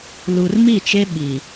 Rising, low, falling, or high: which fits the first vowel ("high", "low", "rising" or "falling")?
low